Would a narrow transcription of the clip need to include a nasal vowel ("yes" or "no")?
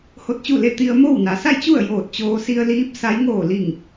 no